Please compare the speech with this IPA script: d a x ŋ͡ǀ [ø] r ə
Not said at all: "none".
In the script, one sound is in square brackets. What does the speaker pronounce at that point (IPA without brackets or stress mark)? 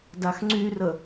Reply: y